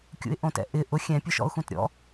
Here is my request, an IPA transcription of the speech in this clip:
kʲ ṵ ɪ̯ ʔ õ t ɛ̰ ʔ ɪ ʔ ʊ xʲ ɛ̃ pʲ ʊ ʃ ɔ̰ ʊ̯ x ũ t ɾʲ ɔ̰

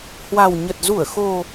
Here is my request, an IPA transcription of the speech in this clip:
h w a˨˩ w ɲ ə˨˩ t̚ z u˧˩ ə̯ x o˨˩

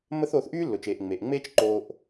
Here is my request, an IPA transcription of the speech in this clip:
mː ə˥ θ oː˧ θ ʔ yː˥ lː ʊ˩ t͡ʃ eː˩ ʔ ŋ͡m e˩ ʔ ŋ͡m eː˥ t͡ʃ ǃ oː˧ ʔ

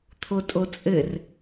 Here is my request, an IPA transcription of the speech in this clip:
t̪ʰ o tʼ o t͡sʼ ɘ r

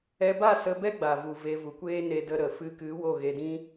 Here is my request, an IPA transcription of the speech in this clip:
ɛ˧ b a˦˨ s ə˧ b ɛ˦ ɡ͡b a˨ v u˨ v e˧ v u˨ kʷ eː˦ n e˧ d ə˧ ɾ ə˨ f ɨ˧ k ɨ˨˦ w o˦˨ ɣ e˧ d ĩ˦

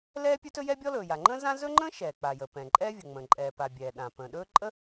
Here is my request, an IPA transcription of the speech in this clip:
l ɛː˥ pʲ ɵ˥ t ɵ˥ j ɛ˥ bʲ ɔ˥ l ɵː˩ j a˩ ŋ͡ǃ ə̃ː˥ z ã˥ z ɵ˥ ŋ͡ǃ ə̃ː˥ ʃ ɛː˩ k͡p a˩ j ə˩ p ɛ̃˩ ǃʼ ɛː˥ vʲ ə˩ ŋ͡m ə̃ː˩ ǃʼ ɛː˩ p a˩ bʲ ɛː˩ ɗ ã˩ p ə̃ː˩ ɗ ɵː˥ ǃʼ ə˥

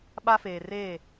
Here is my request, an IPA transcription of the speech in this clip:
ɓ a˦ f eː˨ r eː˦˨

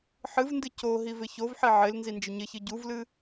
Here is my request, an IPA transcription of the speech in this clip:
ħ ɨ v n d ɨ c o ɦ i v ɪ ç o v ħ i ʕ ɪ l n z i n d͡ʒ ɪ ɲ ɪ ç ɨ ɟ u v l ɨ

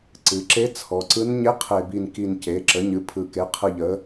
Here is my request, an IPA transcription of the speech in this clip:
ǀ ɨ˩˧ ǁ e˧˥ t͡sʰ ɔ˩˧ ǀ ɯ˧˥ n ɲ e˧˥ qʰ e˨˩ b i˨˩ n k i˨˩ n c e˩˥ ǁ ə˩˥ ɲ ɨ˩˥ pʰ ɯ˨˩ k e˩˥ qʰ ɯ˨˩ ʎ ə˩˧

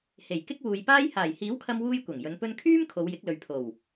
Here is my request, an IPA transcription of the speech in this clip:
h e˨˩ j k ɪ˥ k̚ w uː˨ j p aː˥ j h aː˨˩ j h iː˨˥ w kʰ ɐ˧ m w uː˧ j kʷ ɐ˨˩ ŋ j ɵ˨˧ n p ɵ˧ n kʰ yː˥ m kʰ o˨˧ w j ɪ˨˥ k̚ l ɵ˨ ɥ pʰ o˨˩ w

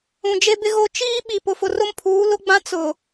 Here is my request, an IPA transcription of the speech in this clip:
ũ˨ d͡ʒ e˦ b ɪ˦ ɣ o˦ t͡ʃ iː˦ ɓ i˨ p ʊ˨ f ʊ˨ r ʊ˦ m pʰ uː˨˦ l ʊ˦ ɡ͡b ã˦ t͡s ʊ˨

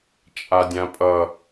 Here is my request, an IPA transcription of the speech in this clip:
t͡ʃʼ a dʲ ã pʼ ʌ

